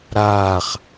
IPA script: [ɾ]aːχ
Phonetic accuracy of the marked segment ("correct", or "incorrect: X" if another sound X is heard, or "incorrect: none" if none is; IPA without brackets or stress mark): correct